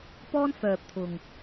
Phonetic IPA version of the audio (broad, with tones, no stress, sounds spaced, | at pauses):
p ɔː˥ n f œː˨ p̚ t̪ʰ ʊ˨ ŋ